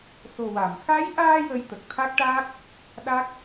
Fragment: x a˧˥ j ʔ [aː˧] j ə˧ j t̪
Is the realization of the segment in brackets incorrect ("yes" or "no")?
no